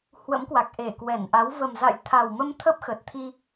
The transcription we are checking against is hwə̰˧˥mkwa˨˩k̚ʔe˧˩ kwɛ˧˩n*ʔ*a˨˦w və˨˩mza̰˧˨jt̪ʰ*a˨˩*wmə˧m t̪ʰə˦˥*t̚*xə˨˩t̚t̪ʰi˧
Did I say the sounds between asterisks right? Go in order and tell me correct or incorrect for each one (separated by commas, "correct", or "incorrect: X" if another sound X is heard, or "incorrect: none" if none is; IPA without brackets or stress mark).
correct, correct, incorrect: p̚